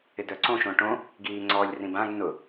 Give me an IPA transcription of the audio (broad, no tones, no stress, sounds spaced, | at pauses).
ɪ d œ ǀ õ ʃ õ ʈ õ | ɡ iː ŋ͡ǀ ɔ lʲ r ĩ b ã ɡ n ʊ